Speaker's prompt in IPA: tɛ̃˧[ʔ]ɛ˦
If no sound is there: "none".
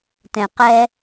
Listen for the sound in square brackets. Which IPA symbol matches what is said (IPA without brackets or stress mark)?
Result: q